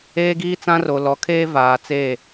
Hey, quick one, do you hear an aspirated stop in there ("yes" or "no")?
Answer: yes